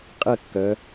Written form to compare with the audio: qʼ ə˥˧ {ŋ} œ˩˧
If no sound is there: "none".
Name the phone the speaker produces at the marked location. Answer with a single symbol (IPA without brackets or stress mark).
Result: kː